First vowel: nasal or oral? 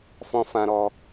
nasal